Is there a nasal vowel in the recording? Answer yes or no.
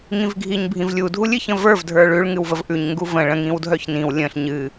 yes